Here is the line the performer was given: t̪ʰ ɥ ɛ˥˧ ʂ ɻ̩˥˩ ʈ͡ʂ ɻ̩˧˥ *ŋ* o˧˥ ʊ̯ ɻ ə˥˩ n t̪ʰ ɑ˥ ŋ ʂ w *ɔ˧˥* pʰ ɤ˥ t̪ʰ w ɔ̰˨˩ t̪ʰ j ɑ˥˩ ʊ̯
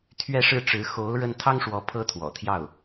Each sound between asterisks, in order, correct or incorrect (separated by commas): incorrect, correct